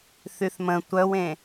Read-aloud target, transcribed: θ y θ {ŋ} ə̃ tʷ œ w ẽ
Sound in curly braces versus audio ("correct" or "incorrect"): incorrect